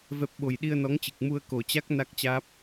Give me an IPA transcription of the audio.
vɛ˨˩p̚ ɓo˨˩jɗi˧ə̯nɔ˨˦ŋt͡ɕɨ˨˩k̚ mu˧ə̯ko˨˩t͡ɕa˦˥k̚ na˦˥k̚t͡ɕaː˦˥p̚

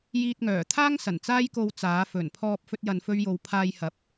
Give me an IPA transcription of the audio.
jiː˧t̚ŋœː˨˩ t̪ʰaː˥ŋ sɐ˨˩nt͡saː˥jko˧w t͡saː˨˥ fɵ˨˩npʰɔː˧p̚ fɵ˥t̚jɐ˧nfɵ˥ɥjo˧w pʰaː˧jhɐ˨˥p̚

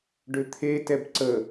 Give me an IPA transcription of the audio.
ɖʏt̪ʰetɛb ǀə

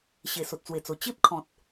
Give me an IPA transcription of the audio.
ɕe˨˩so˨t̚t͡swe˨˩t͡so˨˩ t͡ɕe˦p̚kʰɔ̃˨t̚

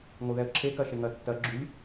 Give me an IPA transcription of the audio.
ŋoðɛə̯ǁʰe kɜʃeŋɜtːɜ ɡ͡ǁʉlʲ

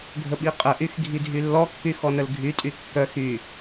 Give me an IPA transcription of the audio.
ɡʱəɓiqʼəʔyx ɡʱidʱylːɔkːy xɔnəlɡʱytʼy kːœx y

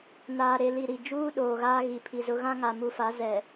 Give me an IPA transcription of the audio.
naː˨ɾe˨li˨ ɾi˨ d͡ʒuː˦ɗoː˨ ɣaː˦ ɣi˨pʰi˨zʊ˦ ɣã˦ŋa˨mu˨fa˨˦ zɛ˨

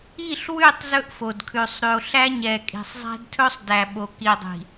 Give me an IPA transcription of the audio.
i˦˨ɬwʉ˦˨tˤ zɵ˦ʔfo˨dkʰʉ˨sˤ ɾʉ˨o̯ɬæ˦ɲɛ˨ kʼi̤˨sˤzˤæ̤˦dtʰɵ˦sˤ dæ˨ɓo˨ ki˨dˤi̤˨

